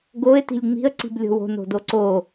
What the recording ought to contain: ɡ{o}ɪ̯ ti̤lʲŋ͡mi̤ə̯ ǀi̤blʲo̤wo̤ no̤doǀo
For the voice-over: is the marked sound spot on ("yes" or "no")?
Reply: yes